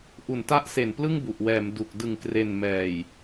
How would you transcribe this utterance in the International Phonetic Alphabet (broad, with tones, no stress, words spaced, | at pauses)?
ʔu˩˦nta˦˥ʔse˩˦n plɯ˥˩ŋbu˨˩ʔwɛː˩˦m du˨˩k̚ dɯ˩˦ŋkre˨˩nmɛː˨˩j